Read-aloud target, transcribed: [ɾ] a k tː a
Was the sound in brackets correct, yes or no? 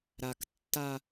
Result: yes